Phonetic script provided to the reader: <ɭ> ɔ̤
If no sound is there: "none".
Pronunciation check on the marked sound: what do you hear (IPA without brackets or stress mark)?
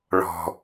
ɭ